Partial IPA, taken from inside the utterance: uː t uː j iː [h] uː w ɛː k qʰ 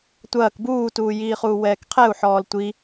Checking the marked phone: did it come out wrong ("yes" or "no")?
yes